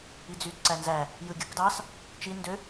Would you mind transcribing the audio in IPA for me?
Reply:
i d͡z y d ǀ æ n z æ | j ɯ ɡʲ ɯ k d ɑ s | t͡ʃ i n d ø

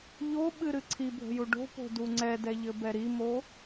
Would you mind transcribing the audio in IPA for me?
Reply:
ʎ o ɓ ɨ ɾ ɨ ǀʰ i bʱ ə̤ j u ɖ o̤ p o̤ d u ŋ͡ǀ ɛ d ɛ ʎ ɘ b ɛ ɾ i m o

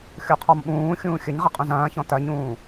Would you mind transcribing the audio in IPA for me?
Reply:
xʲ o qʰ ɔ m ɓ ũː xʲ ũː xʲ ə ɲ ʁ ə qʼ ũ z ɐ̃ː ç ɔ̃ t ɐ ɲ ũː

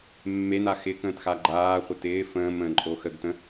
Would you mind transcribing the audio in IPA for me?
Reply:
mː e n a x ɪ k ə̃ː t x a ɡ͡ǃ aː χʷ ə t ɪː f ə̃ː m ə̃ː ǃʼ o x ə ɡ t ə̃

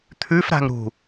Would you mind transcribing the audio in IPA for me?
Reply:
t̪ʰ ʉ f ɾ a̤ ŋ ɾ ṳ

